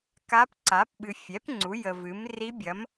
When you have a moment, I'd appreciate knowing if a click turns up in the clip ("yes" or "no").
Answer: yes